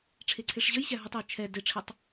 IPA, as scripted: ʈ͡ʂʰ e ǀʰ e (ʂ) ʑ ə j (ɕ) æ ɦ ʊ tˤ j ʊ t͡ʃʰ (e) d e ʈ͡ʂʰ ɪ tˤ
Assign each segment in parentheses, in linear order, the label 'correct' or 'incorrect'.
correct, correct, incorrect: ɛ

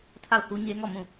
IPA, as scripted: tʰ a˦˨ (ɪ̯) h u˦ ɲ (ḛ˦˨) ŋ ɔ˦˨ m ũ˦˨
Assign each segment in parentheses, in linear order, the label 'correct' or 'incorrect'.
incorrect: ʊ̯, incorrect: e˦

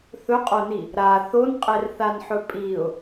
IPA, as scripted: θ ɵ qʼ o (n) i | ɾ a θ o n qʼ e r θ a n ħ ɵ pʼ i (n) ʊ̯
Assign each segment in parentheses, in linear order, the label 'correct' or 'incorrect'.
correct, incorrect: none

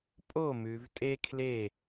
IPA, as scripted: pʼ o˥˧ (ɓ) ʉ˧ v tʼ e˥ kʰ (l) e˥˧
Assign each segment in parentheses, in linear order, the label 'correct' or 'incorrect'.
incorrect: m, correct

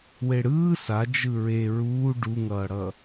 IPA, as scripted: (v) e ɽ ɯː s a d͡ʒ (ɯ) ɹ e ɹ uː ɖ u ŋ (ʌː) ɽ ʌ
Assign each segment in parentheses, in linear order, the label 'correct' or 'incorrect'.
incorrect: w, correct, correct

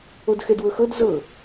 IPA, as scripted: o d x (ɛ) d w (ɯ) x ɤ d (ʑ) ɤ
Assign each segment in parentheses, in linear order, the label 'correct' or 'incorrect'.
correct, incorrect: ɤ, incorrect: z

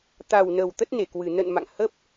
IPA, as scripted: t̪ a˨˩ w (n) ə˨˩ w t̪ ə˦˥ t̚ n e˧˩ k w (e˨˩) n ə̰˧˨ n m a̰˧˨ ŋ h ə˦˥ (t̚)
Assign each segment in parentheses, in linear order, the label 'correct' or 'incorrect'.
correct, incorrect: ɨ˨˩, incorrect: p̚

